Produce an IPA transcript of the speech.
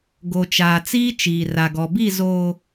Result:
ɡo˨t͡ʃaː˨t͡siː˦ t͡ʃiː˨ra˨ɡɔ˨ bi˦˨zoː˨

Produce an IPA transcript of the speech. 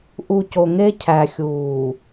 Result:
ʔu˨ co˨ŋe˦ cʰæ˨xʲuː˨

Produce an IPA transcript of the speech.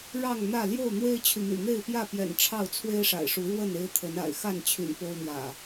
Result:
ɻɑ˥˨ŋ n̪ä˥˨ ljo˥˨ʊ̯n̪we˦ɪ̯t͡ɕʰy˨n̪y̰˨˩ n̪e˥˨ɪ̯pjä˥˨pjɛ̰˨˩n ʈ͡ʂʰɑ˥˨ʊ̯t͡sʰwe˦ɪ̯ʂa̰˨˩ɪ̯ʂu˨˦ ɻwə˥˨n e˦ɪ̯t̪ʰə˨˦n a̰˨˩ɪ̯xa˥˨nt͡ɕʰy̰˨˩n po˦ʊ̯n̪jä̰˨˩

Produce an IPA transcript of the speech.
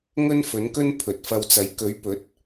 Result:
ŋɵ˥nfɵ˨˥nkɵ˥n pʰɵ˨t̚fɐ˧wt͡sɐ˨˥j kɵ˨˥ɥ pɵ˨˥t̚

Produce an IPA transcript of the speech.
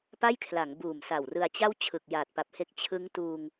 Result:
pa˥˩jkʰla˩˦ŋ buː˨˩msa˨˩wrɯ˧a̯t͡ɕa˥˩w t͡ɕʰɯ˨˩k̚ jaː˨˩t̚pa˨˩p̚he˦˥k̚ t͡ɕʰɯ˦˥ŋtuː˧ŋ

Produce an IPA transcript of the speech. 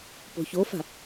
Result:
po̤çofa̤

